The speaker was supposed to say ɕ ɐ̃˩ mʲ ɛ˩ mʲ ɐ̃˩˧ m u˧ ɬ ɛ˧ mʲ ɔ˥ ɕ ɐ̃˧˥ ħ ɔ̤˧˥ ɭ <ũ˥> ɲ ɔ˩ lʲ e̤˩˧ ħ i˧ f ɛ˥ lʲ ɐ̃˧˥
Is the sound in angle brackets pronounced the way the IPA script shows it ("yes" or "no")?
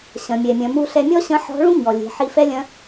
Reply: yes